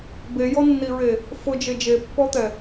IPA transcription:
bejɔnːiɹe | fʊd͡ʒe d͡ʒepːɔt̪ɛ

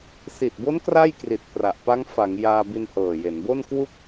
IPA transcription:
si˨˩t̚bo˦˥n kra˥˩jkri˨˩t̚pra˨˩ʔ pa˦˥ŋfa˩˦ŋ jaː˧ bi˧nhɤː˨˩je˩˦n bo˥˩nkwu˥˩k̚

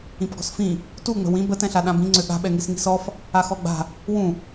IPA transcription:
ĩpɡɔ̤sfĩ | tuŋ͡mə̤ wĩ bətɛ̃ɬa ɗãbĩŋ͡ǀø ɠa̤ɓɛŋis ŋi̤sɔf | axɔɡ͡ba̤ | wũ

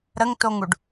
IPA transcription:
ɾəŋtoŋuɖ

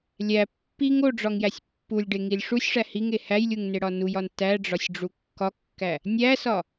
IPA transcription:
lʲæ pːiŋ oɖ͡ʐɒŋjæsʲ pːulʲɖeŋilʲ ʂusʲʂæ hiŋe hæjlʲuŋneɽɒ nujɒn tæɖ͡ʐɒsʲɖ͡ʐu kːɒkːæ | nʲæsɒ

